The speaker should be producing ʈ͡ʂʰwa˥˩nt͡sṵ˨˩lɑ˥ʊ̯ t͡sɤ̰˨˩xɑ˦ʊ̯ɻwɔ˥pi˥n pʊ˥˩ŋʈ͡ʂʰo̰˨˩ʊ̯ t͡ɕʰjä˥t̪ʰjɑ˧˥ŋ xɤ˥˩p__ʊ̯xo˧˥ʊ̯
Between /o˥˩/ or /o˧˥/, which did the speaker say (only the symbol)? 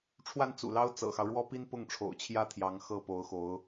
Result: o˧˥